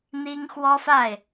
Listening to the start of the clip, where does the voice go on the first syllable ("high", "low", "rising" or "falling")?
high